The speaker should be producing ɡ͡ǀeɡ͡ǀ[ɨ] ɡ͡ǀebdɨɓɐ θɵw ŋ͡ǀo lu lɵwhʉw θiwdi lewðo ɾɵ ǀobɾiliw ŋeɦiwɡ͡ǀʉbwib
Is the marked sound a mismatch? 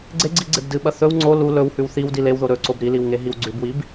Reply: yes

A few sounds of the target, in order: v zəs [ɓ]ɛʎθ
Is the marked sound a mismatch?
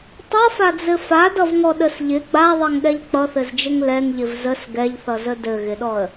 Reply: yes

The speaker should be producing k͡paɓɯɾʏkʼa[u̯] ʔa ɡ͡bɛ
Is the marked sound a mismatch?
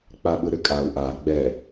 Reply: no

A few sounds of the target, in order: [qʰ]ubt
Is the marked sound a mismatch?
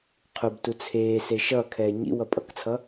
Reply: no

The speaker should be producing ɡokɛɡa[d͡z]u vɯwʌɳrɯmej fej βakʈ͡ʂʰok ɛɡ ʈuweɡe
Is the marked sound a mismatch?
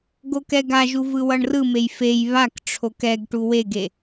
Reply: yes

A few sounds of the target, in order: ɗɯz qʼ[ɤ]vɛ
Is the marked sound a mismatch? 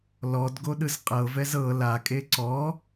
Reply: no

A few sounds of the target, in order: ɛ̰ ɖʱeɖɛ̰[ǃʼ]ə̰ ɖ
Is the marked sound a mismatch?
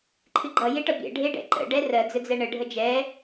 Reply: yes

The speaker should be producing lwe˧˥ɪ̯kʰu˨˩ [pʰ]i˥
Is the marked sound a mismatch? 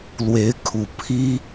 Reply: no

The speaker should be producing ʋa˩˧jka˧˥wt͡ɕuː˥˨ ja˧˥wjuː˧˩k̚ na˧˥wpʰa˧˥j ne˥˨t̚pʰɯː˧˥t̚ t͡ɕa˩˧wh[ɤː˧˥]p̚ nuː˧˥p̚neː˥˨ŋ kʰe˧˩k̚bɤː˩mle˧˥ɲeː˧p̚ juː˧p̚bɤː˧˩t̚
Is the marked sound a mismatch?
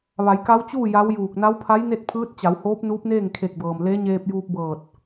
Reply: yes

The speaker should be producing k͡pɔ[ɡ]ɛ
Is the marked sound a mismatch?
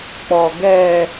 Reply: no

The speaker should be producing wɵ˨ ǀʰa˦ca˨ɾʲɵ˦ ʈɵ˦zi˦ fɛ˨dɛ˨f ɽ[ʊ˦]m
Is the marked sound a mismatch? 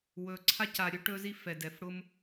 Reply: no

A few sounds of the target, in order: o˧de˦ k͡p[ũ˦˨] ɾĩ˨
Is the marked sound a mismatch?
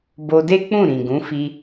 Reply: no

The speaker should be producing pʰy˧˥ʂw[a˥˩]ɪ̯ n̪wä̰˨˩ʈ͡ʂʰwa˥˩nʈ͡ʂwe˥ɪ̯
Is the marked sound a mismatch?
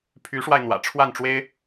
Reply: yes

